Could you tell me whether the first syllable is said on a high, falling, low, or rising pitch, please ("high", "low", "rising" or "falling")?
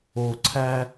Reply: low